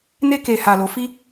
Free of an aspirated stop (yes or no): yes